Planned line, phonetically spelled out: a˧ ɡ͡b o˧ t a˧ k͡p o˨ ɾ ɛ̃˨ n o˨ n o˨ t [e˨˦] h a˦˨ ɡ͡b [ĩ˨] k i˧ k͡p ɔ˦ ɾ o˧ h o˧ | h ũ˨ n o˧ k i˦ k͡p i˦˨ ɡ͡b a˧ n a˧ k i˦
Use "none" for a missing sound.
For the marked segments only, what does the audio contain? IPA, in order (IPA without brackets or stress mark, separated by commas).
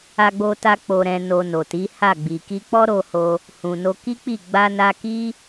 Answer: i˨˦, i˨